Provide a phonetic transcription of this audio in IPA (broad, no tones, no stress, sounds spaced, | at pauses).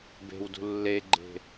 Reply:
b e̤ w d ṳ lː e ɡ͡ǃ e̤